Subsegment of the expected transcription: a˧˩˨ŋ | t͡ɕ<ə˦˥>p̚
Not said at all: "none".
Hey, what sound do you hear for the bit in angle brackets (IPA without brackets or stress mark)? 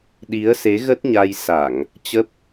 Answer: ə˦˥